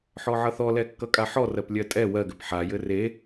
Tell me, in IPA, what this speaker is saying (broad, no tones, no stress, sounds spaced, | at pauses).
ħ ɔ ʕ ʌ θ ɔ l ɛ kː ʌ kʼ a ħ ɔ r ɜ p lʲ ɜ tʼ ɛ w ɜ ɡ ɘ p ħ a j ɘ r e